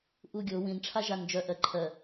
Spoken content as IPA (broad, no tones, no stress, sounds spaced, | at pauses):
ʔ u ɡʲ o w ĩ n ʈ͡ʂʰ a ʒ a n d͡ʒ œ ʔ ɜ ǃʰ ɜ